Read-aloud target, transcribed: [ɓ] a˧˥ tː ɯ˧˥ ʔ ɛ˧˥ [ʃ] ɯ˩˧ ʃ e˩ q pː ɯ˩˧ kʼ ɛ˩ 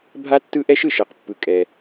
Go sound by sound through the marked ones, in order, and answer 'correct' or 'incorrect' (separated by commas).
incorrect, correct